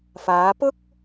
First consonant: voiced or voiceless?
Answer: voiceless